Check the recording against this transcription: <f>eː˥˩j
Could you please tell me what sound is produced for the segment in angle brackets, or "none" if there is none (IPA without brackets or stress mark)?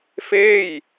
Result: f